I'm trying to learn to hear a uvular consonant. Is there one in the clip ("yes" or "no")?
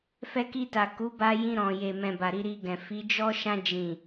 no